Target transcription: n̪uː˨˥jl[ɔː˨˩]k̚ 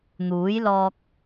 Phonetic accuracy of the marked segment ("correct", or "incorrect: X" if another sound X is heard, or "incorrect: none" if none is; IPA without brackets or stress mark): incorrect: ɔː˧